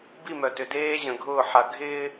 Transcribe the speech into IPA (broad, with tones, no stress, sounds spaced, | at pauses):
b i˦˨ m œ˨ t ʏ˨ d eː˦ ʑ ə̃˨ ɡʱ ʊː˦˨ ħ a˨ ɡʱ ɪː˦